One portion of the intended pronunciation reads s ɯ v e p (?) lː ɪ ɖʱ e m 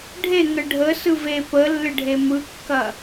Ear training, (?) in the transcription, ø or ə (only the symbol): ə